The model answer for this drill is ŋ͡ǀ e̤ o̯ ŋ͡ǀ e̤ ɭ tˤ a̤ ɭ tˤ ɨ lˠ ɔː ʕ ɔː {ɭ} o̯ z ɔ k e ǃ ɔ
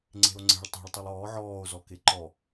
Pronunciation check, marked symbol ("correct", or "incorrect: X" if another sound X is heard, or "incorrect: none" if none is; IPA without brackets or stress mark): incorrect: none